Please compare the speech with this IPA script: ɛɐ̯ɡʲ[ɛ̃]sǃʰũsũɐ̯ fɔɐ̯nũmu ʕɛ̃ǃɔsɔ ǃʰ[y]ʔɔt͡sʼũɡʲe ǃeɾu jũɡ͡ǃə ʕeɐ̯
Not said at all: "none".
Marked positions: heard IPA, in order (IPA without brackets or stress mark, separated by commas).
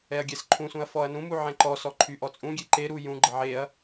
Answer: ɛ, y